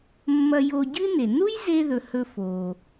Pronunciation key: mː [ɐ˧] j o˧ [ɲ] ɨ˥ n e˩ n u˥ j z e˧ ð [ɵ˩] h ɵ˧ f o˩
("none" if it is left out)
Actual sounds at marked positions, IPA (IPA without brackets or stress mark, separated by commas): ɐ˧, ɟ, ɵ˩